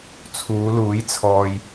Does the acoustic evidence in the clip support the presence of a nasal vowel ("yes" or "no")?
no